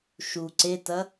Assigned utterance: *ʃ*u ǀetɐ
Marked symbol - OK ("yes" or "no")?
yes